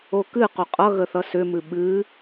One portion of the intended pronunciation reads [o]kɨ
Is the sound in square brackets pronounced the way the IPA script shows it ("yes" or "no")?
yes